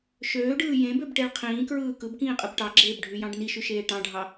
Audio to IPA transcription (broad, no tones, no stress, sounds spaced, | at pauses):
ʃ øː ɖ ɯː j ẽ b ø b ʈ e ɭ qʰ ĩː k ɹ ɯː k ɯ b k ĩː qʼ ɯ b ʈ ɑ ɡ͡ǁ eː b ɖʱ y j ɑ̃ ɖ n i ʃ y ʃ eː ʈ ɑ̃ ɖʱ ɑ